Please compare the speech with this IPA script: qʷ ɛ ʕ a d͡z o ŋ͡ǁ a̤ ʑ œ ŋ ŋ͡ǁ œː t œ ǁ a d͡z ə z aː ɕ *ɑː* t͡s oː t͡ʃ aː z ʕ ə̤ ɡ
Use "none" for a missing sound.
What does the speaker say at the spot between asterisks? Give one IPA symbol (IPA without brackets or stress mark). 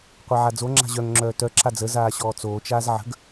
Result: ɔː